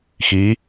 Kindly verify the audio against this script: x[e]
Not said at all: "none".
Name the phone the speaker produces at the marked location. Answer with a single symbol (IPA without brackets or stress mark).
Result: i